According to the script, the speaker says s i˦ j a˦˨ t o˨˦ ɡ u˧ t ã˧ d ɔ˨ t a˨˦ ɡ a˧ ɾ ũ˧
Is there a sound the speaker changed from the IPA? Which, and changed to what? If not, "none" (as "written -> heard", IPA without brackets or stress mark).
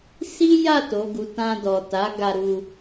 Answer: ũ˧ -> u˧